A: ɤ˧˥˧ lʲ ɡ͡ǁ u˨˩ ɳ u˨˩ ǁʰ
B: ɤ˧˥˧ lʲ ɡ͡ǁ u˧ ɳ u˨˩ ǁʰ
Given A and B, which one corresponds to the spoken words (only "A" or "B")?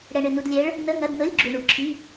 B